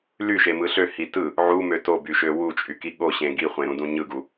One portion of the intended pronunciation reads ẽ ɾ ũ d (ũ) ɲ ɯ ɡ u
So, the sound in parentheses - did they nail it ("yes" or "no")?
yes